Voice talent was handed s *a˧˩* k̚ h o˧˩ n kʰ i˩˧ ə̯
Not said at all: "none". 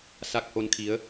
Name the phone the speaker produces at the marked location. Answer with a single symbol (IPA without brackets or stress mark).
a˧˩